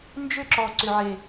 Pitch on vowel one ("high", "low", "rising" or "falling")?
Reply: high